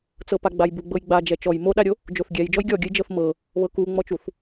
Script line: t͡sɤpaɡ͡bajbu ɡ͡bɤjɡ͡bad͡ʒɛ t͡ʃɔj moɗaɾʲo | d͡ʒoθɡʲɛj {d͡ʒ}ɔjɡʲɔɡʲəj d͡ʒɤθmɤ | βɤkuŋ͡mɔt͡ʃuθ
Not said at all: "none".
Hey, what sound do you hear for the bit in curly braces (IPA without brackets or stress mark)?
d͡ʒ